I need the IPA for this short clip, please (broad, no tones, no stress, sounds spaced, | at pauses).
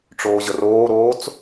ʈ͡ʂ oː ʑ ə r oː ɾ oː t͡s